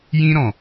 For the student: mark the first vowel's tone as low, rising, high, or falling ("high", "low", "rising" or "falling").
high